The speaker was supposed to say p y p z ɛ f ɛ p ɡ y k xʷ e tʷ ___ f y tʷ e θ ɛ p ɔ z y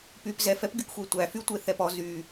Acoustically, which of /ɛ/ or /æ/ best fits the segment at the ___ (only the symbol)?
æ